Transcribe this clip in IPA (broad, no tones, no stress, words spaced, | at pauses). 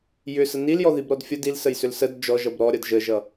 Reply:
jʏsə niljɔðibɾɔd fʲə dilsəjsʏl səd d͡ʒɔʒʌb ɾɔɾʲʌd ʒəʒʌ